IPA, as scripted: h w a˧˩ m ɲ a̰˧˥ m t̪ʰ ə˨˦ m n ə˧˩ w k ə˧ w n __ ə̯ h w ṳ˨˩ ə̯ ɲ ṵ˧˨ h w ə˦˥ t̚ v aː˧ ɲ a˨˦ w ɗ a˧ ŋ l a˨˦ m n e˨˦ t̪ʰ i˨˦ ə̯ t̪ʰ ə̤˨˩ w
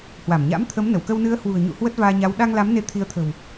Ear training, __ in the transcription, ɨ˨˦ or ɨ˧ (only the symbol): ɨ˨˦